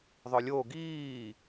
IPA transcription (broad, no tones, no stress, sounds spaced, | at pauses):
ðˤ œ lʲ o ɡ iː